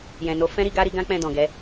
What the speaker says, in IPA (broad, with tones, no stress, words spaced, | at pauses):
jɛ̃˨no˨˦ fɛ̃˦ ɾi˧ɡa˦ɾi˧ɡã˦ k͡pɛ̃˦˨dɔ̃˨ɡɛ˨˦